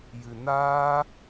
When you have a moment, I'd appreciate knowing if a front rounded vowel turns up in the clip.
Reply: no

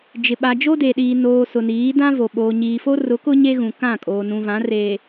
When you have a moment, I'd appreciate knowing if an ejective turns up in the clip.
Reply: yes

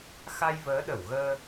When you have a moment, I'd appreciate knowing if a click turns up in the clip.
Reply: no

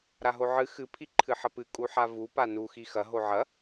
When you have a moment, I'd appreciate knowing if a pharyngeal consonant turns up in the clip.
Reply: yes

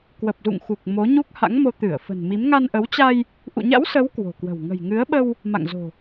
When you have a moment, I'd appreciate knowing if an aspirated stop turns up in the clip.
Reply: no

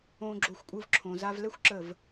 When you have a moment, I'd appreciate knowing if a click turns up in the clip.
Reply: yes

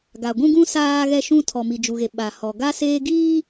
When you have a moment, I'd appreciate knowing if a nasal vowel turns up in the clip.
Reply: yes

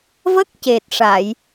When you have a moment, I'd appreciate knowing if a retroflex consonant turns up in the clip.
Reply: yes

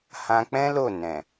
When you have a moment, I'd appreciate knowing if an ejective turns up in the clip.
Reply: no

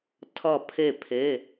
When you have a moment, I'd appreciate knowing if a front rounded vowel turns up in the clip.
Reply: no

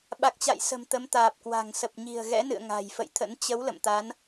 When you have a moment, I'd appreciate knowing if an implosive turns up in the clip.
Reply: yes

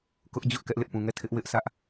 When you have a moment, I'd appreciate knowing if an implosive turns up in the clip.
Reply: no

